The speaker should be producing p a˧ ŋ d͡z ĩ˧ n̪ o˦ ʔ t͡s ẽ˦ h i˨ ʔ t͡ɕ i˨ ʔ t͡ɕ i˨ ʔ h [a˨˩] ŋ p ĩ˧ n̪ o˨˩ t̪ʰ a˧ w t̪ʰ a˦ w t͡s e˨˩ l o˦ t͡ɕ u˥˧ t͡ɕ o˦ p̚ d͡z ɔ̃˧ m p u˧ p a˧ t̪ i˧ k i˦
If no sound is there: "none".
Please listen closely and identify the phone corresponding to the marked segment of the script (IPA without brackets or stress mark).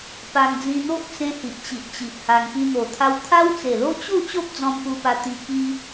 a˧